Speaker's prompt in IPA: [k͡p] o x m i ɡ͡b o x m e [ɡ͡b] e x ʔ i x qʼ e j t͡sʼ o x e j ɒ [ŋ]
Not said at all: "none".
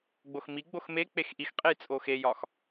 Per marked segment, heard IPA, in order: ɡ͡b, k͡p, x

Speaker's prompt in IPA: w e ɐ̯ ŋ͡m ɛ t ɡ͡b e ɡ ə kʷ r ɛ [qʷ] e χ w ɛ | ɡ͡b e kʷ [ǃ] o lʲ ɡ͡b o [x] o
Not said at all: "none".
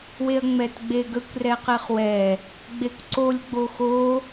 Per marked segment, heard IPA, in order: q, ǀ, x

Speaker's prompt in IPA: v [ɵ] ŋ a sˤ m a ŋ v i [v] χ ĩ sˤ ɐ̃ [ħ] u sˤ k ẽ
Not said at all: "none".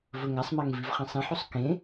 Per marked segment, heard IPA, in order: ɵ, v, ħ

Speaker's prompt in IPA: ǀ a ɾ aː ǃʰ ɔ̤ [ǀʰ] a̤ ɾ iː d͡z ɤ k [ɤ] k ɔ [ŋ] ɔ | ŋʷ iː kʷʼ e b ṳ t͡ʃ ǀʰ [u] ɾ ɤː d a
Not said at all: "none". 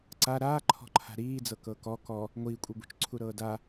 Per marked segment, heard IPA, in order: ǃʰ, ɤ, k, u

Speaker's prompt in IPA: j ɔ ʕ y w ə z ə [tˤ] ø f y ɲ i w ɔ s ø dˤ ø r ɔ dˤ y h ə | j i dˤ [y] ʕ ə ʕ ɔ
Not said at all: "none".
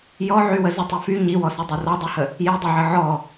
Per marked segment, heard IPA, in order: tˤ, i

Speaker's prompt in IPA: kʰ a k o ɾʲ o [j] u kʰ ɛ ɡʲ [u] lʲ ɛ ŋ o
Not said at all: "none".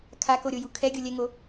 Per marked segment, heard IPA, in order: j, o

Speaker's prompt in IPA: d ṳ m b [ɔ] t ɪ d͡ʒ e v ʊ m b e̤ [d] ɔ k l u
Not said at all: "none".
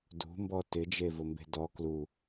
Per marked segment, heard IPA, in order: ɔ, d

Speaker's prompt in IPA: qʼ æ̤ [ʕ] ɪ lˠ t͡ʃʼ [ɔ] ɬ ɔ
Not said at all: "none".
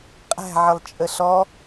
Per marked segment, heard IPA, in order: ʕ, ə

